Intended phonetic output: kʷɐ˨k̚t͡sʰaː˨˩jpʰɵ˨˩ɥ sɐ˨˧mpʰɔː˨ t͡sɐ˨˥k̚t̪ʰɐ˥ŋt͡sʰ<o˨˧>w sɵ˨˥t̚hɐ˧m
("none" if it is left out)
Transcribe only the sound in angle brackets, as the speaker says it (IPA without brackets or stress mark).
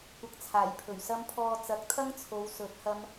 o˨˧